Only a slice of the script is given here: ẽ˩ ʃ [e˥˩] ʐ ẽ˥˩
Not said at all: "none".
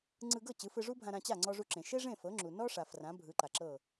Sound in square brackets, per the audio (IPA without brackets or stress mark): e˥